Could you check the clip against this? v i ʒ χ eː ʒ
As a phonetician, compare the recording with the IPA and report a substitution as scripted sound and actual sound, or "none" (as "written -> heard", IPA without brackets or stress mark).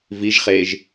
none